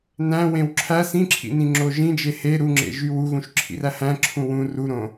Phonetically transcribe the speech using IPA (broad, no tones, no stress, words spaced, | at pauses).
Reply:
næ̃wẽw ǁʰæ sĩǁʰḭnĩŋ͡ǁo ʒĩd͡ʒe he ɾuŋ͡ǁḛʒy wuɣũʃǁʰḭræ hæ̃ǁʰũ wũ ruɾõ